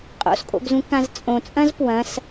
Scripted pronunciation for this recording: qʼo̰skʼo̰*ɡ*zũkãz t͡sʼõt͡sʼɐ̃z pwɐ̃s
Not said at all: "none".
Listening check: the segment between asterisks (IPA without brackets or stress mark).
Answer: ɡ